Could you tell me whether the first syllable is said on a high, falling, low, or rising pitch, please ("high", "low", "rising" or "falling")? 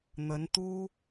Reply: rising